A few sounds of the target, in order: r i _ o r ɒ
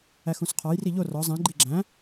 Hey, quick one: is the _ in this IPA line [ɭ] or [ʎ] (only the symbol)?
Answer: ʎ